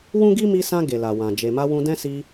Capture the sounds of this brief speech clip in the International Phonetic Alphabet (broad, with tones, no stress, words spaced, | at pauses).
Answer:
wũ˦ɡi˦ mi˧sã˧ ɡe˨la˨wã˨ d͡ʒe˨ma˧wũ˧ dɛ̃˦ si˧